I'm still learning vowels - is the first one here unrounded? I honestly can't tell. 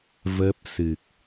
yes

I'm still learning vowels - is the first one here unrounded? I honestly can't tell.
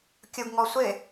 no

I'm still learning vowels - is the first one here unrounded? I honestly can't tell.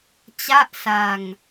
yes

